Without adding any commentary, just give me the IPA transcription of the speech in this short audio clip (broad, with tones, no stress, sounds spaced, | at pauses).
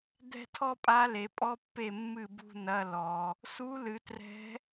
d̪ ɛ̤˥˧ tʰ ɔ˥ pʼ a˧˥ l e˨ pʼ ɔ˥ pː e˥˩ mː ɨ˥˩ b ṳ˥˧ n ɐ˧˥˧ l ɔ˨ | s u˧˥ l ɨ˨ t r ɛ̤˧˥